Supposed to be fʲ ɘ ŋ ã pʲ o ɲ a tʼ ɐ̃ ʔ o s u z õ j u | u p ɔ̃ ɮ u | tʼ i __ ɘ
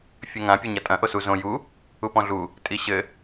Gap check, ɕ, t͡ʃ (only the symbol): ɕ